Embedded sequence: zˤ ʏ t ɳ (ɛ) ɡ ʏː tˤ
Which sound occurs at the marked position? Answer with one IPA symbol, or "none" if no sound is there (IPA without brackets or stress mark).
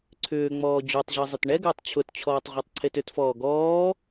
ɛ